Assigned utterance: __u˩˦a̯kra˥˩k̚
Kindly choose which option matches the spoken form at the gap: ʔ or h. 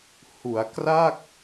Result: h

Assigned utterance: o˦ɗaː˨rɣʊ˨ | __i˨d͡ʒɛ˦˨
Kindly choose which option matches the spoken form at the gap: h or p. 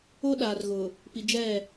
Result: p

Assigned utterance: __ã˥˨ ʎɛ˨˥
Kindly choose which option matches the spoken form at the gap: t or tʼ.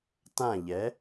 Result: t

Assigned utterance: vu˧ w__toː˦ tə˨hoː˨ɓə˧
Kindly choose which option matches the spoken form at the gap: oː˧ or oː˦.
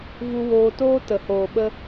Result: oː˧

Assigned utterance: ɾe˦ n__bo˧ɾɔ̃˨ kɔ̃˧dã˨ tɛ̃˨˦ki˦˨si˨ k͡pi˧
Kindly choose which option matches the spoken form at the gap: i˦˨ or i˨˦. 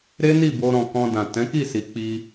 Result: i˦˨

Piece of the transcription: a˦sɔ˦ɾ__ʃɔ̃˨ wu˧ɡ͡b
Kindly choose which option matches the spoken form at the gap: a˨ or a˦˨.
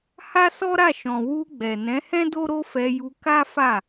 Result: a˦˨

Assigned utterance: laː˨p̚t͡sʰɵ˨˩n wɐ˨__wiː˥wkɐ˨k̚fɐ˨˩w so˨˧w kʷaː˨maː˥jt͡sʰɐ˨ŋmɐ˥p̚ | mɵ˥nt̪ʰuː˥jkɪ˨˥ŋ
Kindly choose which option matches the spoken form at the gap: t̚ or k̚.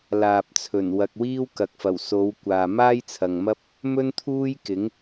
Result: k̚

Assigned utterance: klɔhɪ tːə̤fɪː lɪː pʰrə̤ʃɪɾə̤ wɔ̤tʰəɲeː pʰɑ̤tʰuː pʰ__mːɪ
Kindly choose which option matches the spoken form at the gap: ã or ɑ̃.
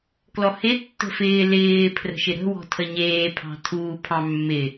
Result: ɑ̃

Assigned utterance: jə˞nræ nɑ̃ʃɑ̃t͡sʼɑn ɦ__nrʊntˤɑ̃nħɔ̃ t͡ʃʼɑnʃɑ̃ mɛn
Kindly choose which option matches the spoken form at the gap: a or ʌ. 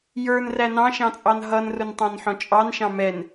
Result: ʌ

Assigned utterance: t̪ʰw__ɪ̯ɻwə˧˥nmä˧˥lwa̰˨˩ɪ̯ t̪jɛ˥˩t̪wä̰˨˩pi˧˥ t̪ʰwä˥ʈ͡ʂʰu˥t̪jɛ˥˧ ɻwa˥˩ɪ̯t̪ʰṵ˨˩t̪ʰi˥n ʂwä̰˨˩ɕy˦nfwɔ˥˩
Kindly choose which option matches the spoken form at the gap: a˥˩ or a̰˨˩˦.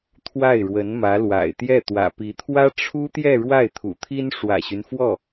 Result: a˥˩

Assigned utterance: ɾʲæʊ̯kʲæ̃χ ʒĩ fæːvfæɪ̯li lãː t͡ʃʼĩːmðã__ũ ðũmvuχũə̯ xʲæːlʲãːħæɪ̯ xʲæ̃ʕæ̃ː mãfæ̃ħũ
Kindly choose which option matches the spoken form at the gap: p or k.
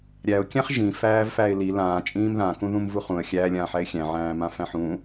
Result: k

